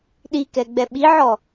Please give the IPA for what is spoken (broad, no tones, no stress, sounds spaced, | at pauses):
ɗ i k ɛ ɡ͡b ɛ ɓ i ʕ ɔ